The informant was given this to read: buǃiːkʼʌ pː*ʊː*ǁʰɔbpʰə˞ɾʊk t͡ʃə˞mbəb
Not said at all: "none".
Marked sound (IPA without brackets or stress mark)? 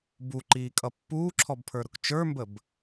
uː